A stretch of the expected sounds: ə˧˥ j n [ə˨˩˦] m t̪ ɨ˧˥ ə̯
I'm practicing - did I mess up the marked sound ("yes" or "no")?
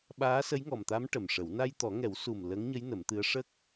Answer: no